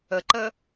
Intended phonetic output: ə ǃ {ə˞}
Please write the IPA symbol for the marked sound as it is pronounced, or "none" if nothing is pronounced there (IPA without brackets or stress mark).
ə